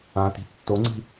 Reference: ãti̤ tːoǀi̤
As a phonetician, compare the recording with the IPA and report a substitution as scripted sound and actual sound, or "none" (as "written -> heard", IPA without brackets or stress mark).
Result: ǀ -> ŋ͡ǀ